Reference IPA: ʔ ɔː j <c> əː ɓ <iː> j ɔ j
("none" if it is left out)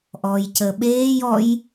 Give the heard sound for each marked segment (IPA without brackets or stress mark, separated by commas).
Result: c, eː